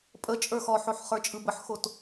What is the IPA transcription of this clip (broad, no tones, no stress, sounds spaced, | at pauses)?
pʼ ə t͡ʃʼ ə˞ x ɔ ħ o ħ χ ə˞ t͡ʃʼ ɯ b ə ħ x o t